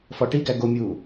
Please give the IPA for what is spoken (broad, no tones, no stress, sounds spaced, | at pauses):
f ɒ ʈ i ɡ æ ɡ o mʲ uː